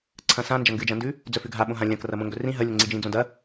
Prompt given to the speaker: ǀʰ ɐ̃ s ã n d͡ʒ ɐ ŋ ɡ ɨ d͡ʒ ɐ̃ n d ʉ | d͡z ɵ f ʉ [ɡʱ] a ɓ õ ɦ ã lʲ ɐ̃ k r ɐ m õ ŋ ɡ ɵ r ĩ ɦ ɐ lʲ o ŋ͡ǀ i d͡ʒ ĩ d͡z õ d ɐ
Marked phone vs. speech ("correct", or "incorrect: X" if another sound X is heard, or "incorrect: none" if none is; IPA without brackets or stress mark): correct